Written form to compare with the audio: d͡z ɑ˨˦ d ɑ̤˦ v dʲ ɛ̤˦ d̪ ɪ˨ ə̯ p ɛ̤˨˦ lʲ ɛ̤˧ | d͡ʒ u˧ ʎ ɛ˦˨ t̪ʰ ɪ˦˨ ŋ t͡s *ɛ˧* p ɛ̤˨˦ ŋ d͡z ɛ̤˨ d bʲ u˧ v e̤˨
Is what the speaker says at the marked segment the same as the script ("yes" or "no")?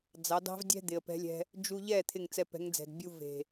yes